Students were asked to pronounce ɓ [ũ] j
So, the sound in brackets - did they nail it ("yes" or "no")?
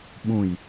yes